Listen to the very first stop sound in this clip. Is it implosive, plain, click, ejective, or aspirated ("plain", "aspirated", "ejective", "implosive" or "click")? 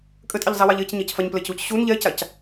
ejective